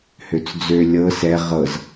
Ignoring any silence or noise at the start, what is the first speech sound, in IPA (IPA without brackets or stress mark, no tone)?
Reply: h